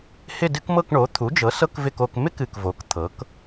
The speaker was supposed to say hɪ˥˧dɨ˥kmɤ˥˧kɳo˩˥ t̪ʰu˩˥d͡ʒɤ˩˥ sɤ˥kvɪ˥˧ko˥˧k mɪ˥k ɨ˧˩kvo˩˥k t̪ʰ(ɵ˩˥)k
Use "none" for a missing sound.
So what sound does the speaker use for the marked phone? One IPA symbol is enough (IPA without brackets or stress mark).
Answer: ɤ˩˥